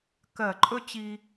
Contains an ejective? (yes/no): yes